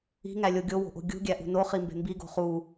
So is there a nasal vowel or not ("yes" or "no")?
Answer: no